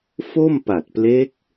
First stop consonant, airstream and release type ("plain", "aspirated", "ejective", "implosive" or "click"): plain